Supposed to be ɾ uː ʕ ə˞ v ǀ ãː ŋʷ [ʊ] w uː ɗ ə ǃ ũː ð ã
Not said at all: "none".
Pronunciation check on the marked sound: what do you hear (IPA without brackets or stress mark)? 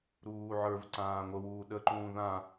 ə